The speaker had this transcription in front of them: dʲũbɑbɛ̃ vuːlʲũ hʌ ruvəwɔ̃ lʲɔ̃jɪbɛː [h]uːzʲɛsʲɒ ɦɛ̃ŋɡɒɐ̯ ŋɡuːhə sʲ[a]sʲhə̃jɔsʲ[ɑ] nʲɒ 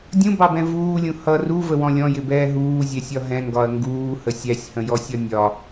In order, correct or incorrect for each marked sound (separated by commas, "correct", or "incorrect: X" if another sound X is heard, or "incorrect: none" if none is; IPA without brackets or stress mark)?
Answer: incorrect: ɦ, incorrect: æ, incorrect: ɒ